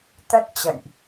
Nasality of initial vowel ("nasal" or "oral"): oral